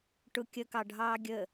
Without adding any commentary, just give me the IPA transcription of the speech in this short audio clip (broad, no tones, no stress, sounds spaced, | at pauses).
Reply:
ʈ ʊ kʲ ə k ɑ ɖʱ ɑː ɡʲ ə